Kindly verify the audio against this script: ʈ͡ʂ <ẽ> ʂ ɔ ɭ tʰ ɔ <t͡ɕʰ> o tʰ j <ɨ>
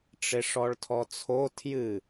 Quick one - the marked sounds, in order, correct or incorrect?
incorrect: e, incorrect: t͡sʰ, correct

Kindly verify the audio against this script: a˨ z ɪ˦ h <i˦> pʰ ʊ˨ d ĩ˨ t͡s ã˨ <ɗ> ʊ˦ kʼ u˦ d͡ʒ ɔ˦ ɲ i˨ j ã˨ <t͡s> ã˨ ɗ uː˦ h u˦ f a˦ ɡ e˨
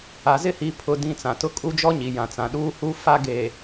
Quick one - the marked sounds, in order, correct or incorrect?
incorrect: i˨˦, incorrect: t, correct

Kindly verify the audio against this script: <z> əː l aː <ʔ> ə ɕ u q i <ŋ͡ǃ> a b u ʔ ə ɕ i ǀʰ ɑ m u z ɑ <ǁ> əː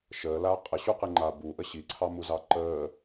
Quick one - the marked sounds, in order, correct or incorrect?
incorrect: ʃ, incorrect: qʼ, correct, incorrect: ǃ

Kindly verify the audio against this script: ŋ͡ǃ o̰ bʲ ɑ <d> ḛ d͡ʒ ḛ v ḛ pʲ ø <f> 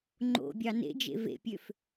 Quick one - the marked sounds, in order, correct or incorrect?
incorrect: n, correct

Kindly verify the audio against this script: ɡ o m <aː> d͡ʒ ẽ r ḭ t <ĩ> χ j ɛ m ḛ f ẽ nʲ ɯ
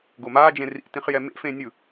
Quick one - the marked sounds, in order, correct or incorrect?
correct, correct

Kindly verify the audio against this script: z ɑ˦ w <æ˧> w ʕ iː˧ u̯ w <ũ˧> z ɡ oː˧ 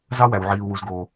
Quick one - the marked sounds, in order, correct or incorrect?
correct, incorrect: u˧

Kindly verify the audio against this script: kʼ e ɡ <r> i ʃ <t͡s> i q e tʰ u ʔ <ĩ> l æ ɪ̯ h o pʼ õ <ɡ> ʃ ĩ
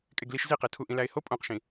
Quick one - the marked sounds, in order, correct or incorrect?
incorrect: l, incorrect: z, correct, incorrect: q

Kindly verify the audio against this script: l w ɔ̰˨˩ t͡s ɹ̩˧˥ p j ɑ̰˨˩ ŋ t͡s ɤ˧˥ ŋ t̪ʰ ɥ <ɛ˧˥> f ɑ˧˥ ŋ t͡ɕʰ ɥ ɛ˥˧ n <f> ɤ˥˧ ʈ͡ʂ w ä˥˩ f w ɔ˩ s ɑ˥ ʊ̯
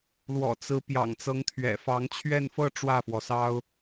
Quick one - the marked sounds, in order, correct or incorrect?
incorrect: ɛ̰˨˩, correct

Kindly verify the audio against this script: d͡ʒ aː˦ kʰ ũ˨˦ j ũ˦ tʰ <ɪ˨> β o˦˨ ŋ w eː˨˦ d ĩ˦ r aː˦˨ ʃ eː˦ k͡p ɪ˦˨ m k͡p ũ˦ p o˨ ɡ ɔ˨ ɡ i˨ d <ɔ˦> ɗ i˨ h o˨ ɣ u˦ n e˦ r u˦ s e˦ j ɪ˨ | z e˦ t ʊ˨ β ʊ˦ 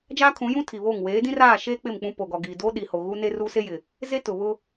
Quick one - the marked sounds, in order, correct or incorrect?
incorrect: i˨, incorrect: o˦

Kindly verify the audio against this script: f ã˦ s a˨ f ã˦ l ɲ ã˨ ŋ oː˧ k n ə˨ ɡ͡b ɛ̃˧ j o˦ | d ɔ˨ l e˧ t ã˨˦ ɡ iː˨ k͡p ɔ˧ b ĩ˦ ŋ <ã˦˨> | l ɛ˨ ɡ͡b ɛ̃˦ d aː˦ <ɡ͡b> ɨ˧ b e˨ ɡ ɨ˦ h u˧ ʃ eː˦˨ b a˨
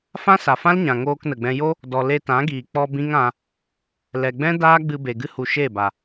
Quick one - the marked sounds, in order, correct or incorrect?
incorrect: ã˧, correct

